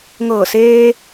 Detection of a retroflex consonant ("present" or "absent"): absent